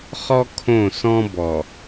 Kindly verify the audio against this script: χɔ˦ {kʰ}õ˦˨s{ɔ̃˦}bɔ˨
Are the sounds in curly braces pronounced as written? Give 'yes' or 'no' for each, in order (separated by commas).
yes, yes